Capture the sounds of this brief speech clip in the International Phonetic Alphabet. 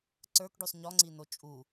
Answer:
ǀ ə˞ k ɖ u sˤ ɲ ɔ ŋ͡ǀ i n o t͡ʃʼ u

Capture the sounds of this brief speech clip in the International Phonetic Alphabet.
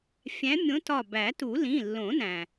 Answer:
fʲ æ̃˨˦ mʲ õ˨˦ t ɒ˧˩ b æ˨˩˦ t u˨˩˦ l ĩ˩˧˩ lː õ˨˩˦ n æ̃˩

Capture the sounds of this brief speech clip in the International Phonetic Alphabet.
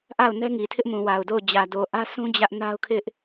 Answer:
ʔ a˦˨ ʊ̯ n ɛ˦ ŋ i˨ tʰ ɪ˦ ʔ m ũ˨ w a˨ ʊ̯ d o˦˨ ʊ̯ d͡ʑ ä˨ d o˨ ʔ ä˦ s ũ˦ d͡ʑ ä˦ ʔ n a˦ ʊ̯ kʰ ɪ˦ ʔ

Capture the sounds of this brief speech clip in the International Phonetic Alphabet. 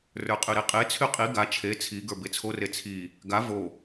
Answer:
r ə˞ qʼ y ɾ e qʼ e t͡sʰ y qʼ i ɡ a t͡ʃʰ e t͡sʰ i ɡ ə˞ b e t͡sʰ o r e t͡sʰ i | ɡ a v o

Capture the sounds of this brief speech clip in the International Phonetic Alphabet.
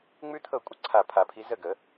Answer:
ŋ͡m ʉ˥ t̪ʰ ɤ˥˨ kʷʼ ə˥˨ ǀʰ a˧˩ pʰ a˨˩˦ pʰ i˨˦ z ə˥˨ ɡ ə˨˩˦

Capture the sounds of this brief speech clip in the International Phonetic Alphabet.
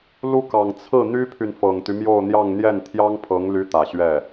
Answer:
l u˥ k ɑ˨˩ ŋ t͡sʰ ɹ̩˥˩ n̪ y˥ pʰ y˨ n f ɤ˨˩ ŋ t̪ y˦ m j o˥˧ ʊ̯ n̪ j ɑ˥˧ ŋ n̪ j ɛ˥˩ n t̪ʰ j ɑ˥ ŋ pʰ ɤ˧˥ ŋ l y˧˥ t̪ ä˨˩ ɕ ɥ ɛ˥˩

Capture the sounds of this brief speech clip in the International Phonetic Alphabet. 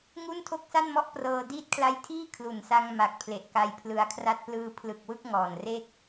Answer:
ŋ u˥˩ n tʰ o˥˩ k̚ s a˥˩ n m ɔ˥˩ ʔ p r ɤː˧ d iː˦˥ t̚ kʰ l a˦˥ j tʰ iː˥˩ kʰ l u˨˩ n s a˧ ŋ m a˨˩ k̚ pʰ l e˨˩ ʔ k a˧ j pʰ l ɯ˧ a̯ kʰ r a˥˩ t̚ p l ɯː˧ pʰ l ɯ˨˩ k̚ w ɯ˥˩ k̚ ŋ ɔː˨˩ n r e˥˩ k̚

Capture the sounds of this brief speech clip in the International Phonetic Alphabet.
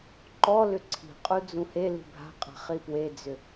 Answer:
ǃ ɔ l ʏ ǀʰ i̤ qʼ u d͡z ũ h e l i̤ bʱ a̤ qʼ a̤ χ i p w e d͡z ʏ

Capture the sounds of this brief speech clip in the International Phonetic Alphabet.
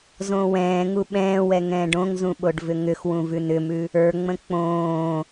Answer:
z õː w ɛ̃ː ŋ u ɓ ɛ̃ː w ɛ ŋ ɛ̃ː ɖ õ ŋ z ũ ɓ o ɖ v ʏ ŋ ʏ x w ũ v ʉ n ʏ m ʉ | ə˞ ŋ͡m ə̃ k͡p õː

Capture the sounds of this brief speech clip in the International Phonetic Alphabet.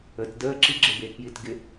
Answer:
ə t d əː ǁ i ɡ͡ǁ e b eː k j i t ɡ ɪ

